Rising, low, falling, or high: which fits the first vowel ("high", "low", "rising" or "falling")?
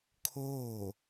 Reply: falling